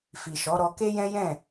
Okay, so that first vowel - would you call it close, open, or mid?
close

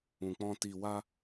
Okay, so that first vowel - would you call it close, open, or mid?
close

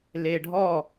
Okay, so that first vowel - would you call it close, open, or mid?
mid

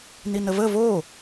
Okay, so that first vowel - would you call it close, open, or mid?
close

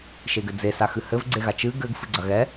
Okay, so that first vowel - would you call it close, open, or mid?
mid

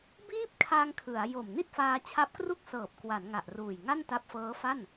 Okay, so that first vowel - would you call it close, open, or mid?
close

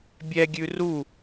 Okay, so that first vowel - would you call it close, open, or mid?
mid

